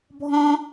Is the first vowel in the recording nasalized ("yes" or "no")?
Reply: yes